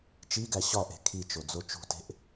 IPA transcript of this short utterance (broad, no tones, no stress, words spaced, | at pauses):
t͡ʃiɡæ ɕɒʔe̤ kʰit͡ʃod͡zo t͡ʃṳte̤ʔ